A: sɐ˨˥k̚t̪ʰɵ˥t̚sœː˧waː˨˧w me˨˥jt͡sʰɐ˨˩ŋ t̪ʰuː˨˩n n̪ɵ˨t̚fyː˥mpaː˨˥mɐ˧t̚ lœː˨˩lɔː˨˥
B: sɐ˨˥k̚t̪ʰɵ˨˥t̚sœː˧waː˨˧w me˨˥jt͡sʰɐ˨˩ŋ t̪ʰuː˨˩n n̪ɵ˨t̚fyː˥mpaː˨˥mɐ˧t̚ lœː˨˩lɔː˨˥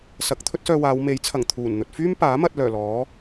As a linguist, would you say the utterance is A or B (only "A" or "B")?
A